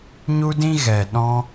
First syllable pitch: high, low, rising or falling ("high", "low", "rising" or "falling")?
high